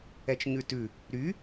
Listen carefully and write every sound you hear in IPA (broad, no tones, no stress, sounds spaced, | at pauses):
ɛ t͡ʃ ɲ ʉ t ʉ | ɾ y